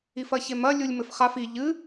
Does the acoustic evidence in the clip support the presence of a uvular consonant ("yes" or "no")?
yes